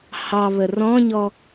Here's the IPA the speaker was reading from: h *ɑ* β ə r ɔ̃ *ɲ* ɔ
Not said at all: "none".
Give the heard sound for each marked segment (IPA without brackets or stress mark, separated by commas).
ɑ, ɲ